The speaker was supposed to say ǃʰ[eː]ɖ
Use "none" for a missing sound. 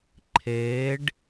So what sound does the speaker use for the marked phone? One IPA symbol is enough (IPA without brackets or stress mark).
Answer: eː